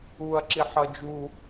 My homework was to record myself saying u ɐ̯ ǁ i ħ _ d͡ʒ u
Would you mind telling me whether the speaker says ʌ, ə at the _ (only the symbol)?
ʌ